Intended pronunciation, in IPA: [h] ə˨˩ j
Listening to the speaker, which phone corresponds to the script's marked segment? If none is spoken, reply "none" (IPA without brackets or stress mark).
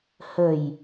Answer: h